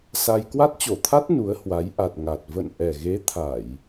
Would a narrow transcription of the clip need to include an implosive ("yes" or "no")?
no